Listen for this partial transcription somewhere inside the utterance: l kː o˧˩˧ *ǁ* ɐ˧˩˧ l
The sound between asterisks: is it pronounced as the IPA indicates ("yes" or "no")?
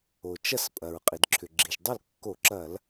yes